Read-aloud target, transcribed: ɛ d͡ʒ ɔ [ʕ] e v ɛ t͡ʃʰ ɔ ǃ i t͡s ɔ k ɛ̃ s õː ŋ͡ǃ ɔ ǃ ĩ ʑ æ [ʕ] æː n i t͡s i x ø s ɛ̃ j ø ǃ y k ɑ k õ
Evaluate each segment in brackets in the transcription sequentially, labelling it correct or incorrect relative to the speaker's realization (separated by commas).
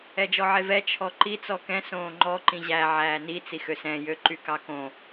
correct, correct